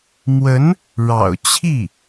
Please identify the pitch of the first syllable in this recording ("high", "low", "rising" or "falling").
rising